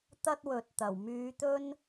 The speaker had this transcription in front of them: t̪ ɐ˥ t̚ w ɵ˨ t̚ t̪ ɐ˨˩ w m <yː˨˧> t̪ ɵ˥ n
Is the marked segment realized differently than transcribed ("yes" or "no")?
no